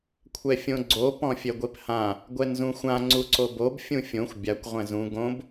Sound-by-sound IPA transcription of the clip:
kʷʰɛfʲõɡ͡ǀo pɔ̃fʲɛɡʷephã | ɡʷɛnzũxʷã ŋ͡ǀuǀobob fʲũfʲõxʷ bʲakʷ ʁʷɛ̃zũ ɡõb

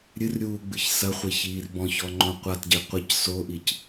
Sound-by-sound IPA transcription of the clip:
ɾʲɨr ɾʲuːɡ͡bɨçsɐχʷe çiːrbɔ̃çɔ ŋ͡ǃõqʷatɟe qʷɐc soʔic

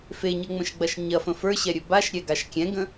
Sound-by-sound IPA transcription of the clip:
feɲɤŋ͡mə̃ʃɡ͡bɐʃ ɲɐfə̃ fə˞ɕɛɾʲɵ baʃɾʲɛɡaʃ kʲɛ̃ɡə̃

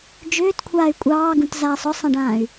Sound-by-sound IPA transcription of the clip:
d͡ʒʏːtkʷʰaːy̯ kʷʼɑːɡũtzaːsˤ ɔsˤãɖãːy̯

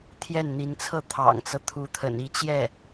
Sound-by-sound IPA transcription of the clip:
t̪ʰjɛ˥˩nn̪i˧˥nt͡sʰɤ˥˩ t̪ʰɑ̰˨˩ŋt͡sɤ˦t̪ʰu˧˥ t̪ʰə̰˨˩ni˧˥t͡ɕjɛ˥˩

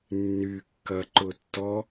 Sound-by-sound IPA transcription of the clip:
nːykːɐǃʊtːɔ

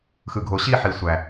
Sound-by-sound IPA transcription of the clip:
xɯ˨ɡʱo˨ ɕi˦˨ħi˨ sʷæ˨

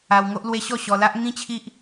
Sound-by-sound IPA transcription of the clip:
a˧wŋo˦ʔlwe˦ ɕɔ˥˧ɕɔ˧la˦ʔ ŋĩ˦t͡ɕʰi˦ʔ

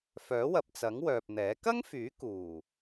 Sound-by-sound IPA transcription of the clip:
fœː˨˥wɐ˨p̚t͡sɐ˨˥ŋ wœː˨p̚n̪ɛː˨˥ kɐ˥ŋfyː˨˥ kuː˨˩

